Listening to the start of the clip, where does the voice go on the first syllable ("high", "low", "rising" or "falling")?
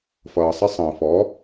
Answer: low